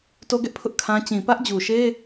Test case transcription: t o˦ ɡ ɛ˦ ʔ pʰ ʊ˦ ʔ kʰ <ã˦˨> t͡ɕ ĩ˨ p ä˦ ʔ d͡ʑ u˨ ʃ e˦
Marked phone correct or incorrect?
incorrect